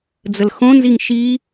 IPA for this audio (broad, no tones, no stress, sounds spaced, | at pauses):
d͡z ə l x õ n z i ŋ ʃ i